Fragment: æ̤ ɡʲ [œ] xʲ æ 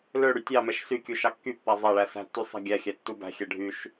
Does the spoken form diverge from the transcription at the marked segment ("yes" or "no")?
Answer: yes